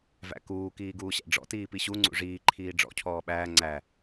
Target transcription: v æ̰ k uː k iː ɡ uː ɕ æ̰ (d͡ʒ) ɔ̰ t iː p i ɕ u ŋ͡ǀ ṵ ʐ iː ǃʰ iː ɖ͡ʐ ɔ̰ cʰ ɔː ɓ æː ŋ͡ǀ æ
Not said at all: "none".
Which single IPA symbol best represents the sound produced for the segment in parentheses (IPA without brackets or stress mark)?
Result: ɖ͡ʐ